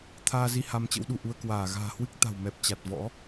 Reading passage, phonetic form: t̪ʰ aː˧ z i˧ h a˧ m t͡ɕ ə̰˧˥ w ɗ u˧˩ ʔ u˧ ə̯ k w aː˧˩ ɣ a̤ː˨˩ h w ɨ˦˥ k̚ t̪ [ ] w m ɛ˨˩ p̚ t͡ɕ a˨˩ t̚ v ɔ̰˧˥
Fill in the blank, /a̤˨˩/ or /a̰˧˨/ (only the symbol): a̤˨˩